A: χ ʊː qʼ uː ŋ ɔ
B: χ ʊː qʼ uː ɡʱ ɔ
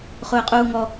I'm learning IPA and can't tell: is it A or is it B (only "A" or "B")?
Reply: A